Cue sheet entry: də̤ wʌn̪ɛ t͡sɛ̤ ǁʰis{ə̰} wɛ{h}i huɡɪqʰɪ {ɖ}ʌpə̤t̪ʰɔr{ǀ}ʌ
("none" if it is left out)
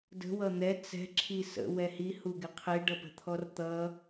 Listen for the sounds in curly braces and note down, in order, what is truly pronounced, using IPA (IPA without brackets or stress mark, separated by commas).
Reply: ə̰, h, ɖ, t̪